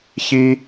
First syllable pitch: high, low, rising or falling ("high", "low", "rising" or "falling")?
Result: high